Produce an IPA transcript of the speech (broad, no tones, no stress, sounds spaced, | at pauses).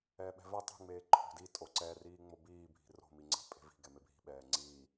ɛː ɓ ɛ̤ v ɛ tˤ e̤ ŋ͡m eː ǃʰ o̤ d i tʼ o ǀ ɛ r iː ŋ͡m o b iː bʱ i̤ r o̤ m i ŋ͡ǀ ɛ̤ pʼ e̤ v i̤ ɡ ɛ m e bʱ i̤ ɓ ɛː ŋ͡ǀ iː